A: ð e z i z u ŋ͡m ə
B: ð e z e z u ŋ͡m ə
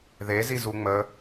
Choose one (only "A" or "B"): A